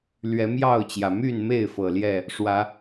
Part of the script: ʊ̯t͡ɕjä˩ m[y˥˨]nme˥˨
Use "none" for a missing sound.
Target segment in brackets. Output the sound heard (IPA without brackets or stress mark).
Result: y˥˨